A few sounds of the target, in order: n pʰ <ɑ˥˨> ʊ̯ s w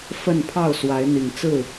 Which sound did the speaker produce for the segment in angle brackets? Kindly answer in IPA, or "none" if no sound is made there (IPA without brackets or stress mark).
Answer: ɑ˥˨